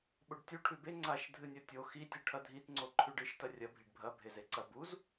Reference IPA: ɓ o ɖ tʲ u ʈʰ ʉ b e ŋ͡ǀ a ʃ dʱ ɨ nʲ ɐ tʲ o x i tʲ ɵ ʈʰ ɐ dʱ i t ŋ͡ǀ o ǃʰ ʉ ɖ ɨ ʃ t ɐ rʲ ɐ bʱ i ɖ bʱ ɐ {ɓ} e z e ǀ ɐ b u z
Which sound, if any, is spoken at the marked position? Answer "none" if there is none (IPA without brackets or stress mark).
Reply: bʱ